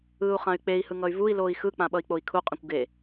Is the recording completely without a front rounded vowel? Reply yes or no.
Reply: no